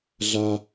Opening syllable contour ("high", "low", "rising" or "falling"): high